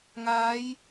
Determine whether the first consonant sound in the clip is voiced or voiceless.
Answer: voiced